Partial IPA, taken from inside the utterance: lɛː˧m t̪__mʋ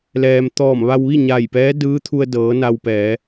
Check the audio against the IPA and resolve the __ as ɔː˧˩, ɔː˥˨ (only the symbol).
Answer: ɔː˧˩